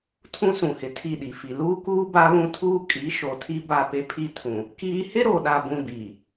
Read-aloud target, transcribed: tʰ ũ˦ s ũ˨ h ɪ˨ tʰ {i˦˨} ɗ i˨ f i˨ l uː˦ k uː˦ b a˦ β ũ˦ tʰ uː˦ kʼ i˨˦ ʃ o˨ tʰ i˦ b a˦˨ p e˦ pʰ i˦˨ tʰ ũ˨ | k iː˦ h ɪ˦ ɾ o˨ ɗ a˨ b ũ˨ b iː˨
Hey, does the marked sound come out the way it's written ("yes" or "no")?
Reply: yes